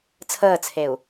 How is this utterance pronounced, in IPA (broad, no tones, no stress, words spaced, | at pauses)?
t͡sʰəːt͡sʰeu̯